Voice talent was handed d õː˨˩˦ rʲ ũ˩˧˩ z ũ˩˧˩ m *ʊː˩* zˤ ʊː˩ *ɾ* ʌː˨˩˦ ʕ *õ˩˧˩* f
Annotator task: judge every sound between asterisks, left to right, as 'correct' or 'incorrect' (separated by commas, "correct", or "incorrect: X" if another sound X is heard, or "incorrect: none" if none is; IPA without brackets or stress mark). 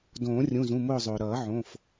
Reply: incorrect: ʊː˦˨, correct, correct